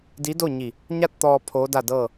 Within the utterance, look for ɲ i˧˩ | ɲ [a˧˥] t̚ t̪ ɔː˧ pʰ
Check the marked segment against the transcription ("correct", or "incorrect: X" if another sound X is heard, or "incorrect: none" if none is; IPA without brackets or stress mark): incorrect: a˥˨